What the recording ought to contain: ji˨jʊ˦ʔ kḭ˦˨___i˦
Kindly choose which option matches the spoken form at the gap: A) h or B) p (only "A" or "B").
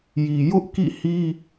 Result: A